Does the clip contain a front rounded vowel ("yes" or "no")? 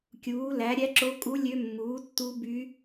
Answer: yes